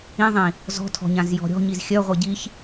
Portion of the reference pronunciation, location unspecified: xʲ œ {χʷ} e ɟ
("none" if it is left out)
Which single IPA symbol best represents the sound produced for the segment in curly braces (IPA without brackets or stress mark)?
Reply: ʁʷ